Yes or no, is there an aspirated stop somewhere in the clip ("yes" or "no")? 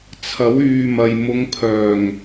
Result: yes